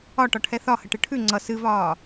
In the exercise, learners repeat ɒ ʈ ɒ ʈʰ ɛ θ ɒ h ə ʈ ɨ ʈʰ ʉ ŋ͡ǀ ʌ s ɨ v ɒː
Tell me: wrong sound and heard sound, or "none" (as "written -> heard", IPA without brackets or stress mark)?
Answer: none